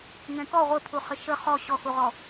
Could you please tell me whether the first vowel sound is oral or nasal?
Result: nasal